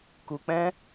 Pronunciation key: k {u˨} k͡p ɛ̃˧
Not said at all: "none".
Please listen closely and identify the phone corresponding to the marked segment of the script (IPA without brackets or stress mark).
u˨